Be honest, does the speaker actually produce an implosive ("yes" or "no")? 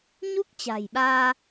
yes